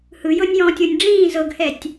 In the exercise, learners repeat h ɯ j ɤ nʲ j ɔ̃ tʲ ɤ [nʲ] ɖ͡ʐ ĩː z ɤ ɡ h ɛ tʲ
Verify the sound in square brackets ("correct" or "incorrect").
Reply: correct